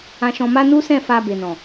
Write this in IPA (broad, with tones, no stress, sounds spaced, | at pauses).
ã˧ ʃ ɔ̃˧ m a˦ n u˦ s ɛ̃˦˨ f a˧ b e˨ n ɔ̃˨